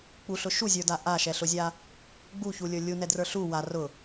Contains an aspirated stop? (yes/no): no